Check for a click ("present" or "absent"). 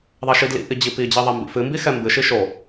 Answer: absent